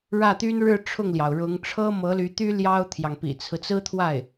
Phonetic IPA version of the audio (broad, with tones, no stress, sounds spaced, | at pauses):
ɻ ä˥˩ t̪ y˥ n ɻ ɻ̩˥˧ ʈ͡ʂʰ ʊ˥˩ ŋ l j ɑ˩ ʊ̯ ɻ ʊ˧˥ ŋ ʈ͡ʂʰ ɤ˥ m ɤ˧˥ l y˧˥ t̪ y˥ l j ɑ˥ ʊ̯ t̪ʰ j ɑ˨ ŋ p ḭ˨˩ t͡sʰ ɹ̩˦ t͡s ɹ̩˥ t̪ʰ w a˥˩ ɪ̯